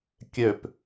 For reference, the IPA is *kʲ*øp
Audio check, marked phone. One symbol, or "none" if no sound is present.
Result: kʲ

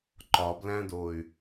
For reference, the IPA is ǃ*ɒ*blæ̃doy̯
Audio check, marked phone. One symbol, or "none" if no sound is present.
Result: ɒ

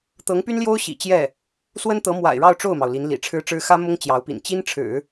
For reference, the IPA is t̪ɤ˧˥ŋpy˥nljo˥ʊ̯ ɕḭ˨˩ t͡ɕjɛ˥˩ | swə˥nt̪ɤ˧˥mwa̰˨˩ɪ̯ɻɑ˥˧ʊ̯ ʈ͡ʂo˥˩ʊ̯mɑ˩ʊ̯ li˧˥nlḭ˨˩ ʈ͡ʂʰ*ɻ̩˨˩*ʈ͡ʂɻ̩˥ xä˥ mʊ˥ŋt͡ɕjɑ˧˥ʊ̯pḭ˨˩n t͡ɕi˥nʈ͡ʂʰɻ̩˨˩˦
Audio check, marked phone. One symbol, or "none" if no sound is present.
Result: ɻ̩˥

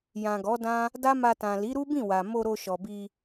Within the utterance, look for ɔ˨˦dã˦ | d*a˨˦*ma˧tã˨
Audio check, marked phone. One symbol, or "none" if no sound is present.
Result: a˦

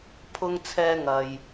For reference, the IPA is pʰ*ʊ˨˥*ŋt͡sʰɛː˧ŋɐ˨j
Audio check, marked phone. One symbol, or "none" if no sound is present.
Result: ʊ˧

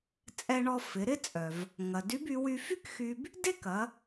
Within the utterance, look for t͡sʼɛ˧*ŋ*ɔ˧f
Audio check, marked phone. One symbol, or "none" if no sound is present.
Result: ɳ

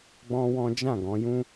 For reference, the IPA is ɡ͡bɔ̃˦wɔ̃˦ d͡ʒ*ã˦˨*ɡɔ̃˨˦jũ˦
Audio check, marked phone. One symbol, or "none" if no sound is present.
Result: ã˦˨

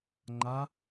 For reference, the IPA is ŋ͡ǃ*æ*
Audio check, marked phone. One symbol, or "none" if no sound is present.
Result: a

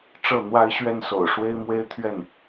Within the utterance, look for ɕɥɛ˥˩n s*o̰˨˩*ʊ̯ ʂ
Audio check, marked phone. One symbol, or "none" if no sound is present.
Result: o̰˨˩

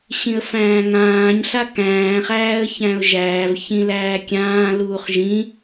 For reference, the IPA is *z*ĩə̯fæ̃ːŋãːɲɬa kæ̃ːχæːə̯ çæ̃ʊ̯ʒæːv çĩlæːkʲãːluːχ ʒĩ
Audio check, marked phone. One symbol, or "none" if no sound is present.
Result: ɕ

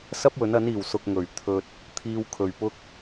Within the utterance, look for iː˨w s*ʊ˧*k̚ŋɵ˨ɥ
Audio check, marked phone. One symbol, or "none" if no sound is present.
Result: ʊ˧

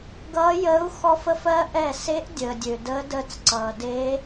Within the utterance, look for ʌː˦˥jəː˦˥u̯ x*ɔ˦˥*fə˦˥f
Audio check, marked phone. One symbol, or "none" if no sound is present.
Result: ɔ˦˥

